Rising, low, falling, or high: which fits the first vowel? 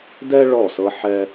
high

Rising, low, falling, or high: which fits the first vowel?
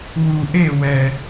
low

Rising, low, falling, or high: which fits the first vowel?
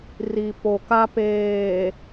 low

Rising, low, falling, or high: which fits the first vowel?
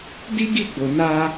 high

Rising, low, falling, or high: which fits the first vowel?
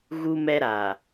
high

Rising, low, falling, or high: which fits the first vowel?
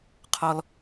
high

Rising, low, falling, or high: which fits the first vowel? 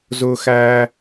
high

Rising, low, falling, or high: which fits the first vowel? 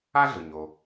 high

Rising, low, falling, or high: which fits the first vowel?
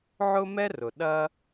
high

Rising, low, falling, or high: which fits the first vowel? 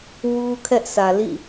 high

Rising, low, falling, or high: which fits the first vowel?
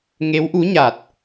rising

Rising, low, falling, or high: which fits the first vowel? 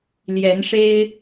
rising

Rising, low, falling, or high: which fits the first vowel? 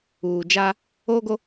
low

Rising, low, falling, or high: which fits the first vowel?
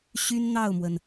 high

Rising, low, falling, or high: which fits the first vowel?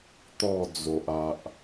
falling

